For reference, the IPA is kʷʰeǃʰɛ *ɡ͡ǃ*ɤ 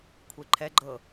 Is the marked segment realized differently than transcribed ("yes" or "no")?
no